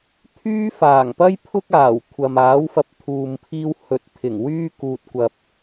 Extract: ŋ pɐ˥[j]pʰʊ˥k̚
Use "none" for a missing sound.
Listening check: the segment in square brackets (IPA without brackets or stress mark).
j